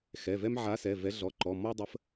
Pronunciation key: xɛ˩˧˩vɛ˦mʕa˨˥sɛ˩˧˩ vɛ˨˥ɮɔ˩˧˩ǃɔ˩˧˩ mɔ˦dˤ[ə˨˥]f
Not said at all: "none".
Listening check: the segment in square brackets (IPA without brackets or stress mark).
ə˨˥